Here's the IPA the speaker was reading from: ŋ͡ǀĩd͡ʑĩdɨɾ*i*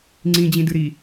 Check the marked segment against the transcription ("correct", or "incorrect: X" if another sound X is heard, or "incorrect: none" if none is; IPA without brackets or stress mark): correct